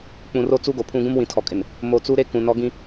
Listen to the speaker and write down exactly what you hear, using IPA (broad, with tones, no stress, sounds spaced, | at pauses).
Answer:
k͡p ũ˨ r o˦ t͡s u˦ ɡ o˨ pʰ ũ˦ ɡ ũ˦ m w ĩ˨ tʰ ɔ˨ kʼ ɪ˨ n | m o˨ t͡s u˦ ɾ e˦ k ũ˨ n ɔ˦ ɡ ĩ˦